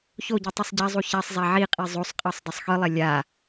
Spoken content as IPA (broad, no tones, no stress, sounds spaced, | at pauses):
ç o ɟ o tˤ u sˤ ɟ a zˤ u ç a sˤ zˤ a ʕ i qʼ i zˤ o sˤ qʼ ɤ sˤ dˤ ɯ sˤ x ɯ lˠ e lʲ a